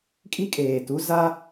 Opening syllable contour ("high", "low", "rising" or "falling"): high